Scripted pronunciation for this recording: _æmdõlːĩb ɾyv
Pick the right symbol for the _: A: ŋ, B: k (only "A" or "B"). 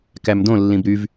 B